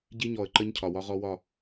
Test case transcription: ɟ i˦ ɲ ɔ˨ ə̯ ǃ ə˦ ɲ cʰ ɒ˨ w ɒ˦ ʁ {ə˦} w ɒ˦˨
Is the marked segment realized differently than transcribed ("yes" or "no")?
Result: yes